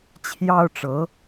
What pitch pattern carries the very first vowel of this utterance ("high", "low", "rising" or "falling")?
high